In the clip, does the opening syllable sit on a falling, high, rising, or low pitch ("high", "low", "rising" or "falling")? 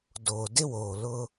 low